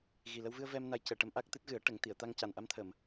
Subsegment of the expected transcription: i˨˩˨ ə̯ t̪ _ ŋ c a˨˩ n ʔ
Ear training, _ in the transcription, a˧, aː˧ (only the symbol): a˧